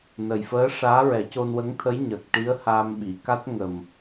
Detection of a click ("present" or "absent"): absent